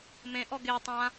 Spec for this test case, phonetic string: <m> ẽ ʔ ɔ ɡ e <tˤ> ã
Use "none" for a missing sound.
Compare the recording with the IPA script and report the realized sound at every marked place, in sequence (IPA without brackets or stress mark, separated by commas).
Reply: m, tˤ